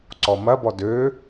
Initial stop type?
click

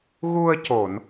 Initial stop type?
plain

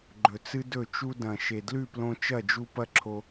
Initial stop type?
click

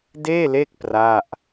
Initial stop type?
plain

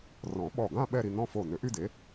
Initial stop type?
implosive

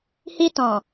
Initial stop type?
plain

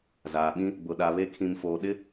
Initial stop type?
implosive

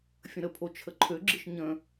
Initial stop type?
aspirated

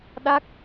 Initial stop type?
implosive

